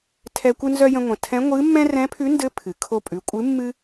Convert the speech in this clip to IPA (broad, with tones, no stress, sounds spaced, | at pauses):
tʰ ɛ˧ kʷ ɨ˧ n z œ˧ j ə̃˧ ŋʷ ə̃˩ tʰ ɛ̃˧˥ ŋʷ ɨ˧˥ mː ɛ̃˥ r ɛ̃˧˥ pʰ ʉ˧˥ n d ɘ˧˥ pʰ ɨ˩ kʰ o˧ pʼ ʉ˩˧ kʷʼ ɨ˧˥ mː ɨ˥